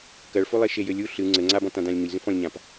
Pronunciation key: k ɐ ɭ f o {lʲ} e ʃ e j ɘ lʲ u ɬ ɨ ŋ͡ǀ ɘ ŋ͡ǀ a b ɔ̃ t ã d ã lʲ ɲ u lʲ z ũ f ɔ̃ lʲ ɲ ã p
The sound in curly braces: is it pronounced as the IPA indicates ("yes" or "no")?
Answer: no